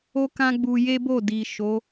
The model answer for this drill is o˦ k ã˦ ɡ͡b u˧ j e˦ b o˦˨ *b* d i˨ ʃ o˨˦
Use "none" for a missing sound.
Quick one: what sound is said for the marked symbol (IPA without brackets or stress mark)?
none